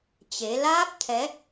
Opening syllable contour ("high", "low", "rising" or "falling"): rising